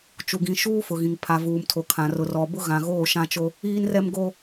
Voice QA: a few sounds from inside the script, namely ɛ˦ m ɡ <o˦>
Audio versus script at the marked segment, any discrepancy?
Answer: no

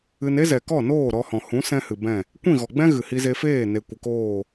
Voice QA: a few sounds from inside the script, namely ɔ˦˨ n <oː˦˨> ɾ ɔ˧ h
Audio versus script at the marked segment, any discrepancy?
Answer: no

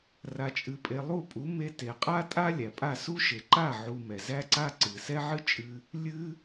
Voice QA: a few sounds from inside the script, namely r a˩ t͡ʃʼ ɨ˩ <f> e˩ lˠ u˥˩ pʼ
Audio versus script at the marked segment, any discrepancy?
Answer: yes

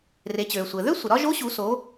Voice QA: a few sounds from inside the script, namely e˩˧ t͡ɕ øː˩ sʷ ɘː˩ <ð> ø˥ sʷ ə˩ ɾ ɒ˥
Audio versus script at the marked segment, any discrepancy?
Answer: no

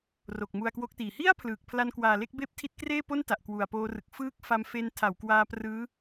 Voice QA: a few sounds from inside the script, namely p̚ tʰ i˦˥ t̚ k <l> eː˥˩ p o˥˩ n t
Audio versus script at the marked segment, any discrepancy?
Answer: yes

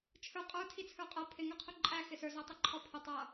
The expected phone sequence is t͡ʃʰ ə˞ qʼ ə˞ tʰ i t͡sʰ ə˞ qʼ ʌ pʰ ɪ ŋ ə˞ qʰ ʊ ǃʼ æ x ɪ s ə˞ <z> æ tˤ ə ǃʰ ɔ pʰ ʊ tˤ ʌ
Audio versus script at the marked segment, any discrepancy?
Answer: no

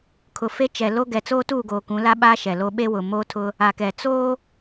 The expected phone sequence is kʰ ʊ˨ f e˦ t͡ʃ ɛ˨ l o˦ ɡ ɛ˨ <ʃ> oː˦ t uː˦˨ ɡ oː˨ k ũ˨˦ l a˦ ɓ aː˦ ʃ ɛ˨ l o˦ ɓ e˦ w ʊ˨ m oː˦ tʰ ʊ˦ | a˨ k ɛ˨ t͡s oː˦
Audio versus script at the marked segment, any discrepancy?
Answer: yes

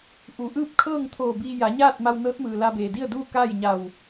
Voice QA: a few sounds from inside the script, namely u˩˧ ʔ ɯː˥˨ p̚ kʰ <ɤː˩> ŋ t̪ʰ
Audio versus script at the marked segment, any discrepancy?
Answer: yes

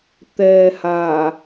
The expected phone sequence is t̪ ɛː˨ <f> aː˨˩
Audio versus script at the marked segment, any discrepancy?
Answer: yes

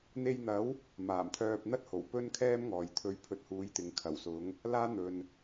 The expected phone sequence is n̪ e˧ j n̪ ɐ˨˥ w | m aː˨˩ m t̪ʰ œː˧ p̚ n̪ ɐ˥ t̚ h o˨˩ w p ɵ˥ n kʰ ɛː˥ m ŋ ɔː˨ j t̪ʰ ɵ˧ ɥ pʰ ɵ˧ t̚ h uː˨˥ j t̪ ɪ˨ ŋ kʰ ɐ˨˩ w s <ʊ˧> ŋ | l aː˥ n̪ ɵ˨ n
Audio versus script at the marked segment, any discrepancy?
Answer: yes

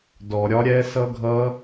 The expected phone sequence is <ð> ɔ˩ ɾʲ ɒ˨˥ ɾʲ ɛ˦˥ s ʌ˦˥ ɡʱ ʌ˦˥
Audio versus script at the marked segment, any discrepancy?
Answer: yes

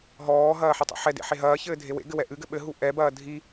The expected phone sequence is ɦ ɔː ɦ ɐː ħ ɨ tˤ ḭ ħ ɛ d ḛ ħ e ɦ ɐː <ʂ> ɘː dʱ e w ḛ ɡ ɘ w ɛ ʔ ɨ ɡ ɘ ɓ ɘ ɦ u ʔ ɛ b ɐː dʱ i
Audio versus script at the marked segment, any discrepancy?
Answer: yes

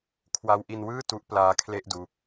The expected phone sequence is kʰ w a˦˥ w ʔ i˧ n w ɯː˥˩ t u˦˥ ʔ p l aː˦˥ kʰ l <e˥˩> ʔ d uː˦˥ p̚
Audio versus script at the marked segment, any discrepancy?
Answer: no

